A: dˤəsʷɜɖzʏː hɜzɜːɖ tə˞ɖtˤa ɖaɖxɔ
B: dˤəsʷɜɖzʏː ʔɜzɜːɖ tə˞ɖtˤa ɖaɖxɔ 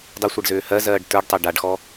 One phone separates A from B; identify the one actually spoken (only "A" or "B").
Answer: A